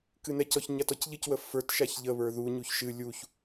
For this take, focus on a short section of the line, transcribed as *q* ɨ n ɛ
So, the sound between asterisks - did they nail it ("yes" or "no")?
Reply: no